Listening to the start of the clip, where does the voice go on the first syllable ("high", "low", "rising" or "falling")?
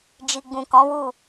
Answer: low